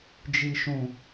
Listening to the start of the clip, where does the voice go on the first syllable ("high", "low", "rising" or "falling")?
low